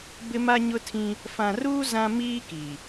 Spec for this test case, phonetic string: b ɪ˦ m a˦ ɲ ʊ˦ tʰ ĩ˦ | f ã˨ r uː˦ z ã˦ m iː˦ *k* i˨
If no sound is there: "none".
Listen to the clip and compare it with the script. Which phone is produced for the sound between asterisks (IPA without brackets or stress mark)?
k